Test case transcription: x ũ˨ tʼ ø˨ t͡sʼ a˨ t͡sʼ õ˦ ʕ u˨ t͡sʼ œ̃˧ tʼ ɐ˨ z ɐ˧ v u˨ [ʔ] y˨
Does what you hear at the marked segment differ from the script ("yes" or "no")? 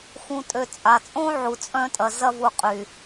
yes